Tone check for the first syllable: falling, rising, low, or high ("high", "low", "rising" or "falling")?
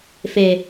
low